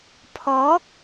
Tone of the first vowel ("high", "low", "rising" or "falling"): rising